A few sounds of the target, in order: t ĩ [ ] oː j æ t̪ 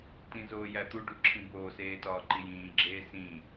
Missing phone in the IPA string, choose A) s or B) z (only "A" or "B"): B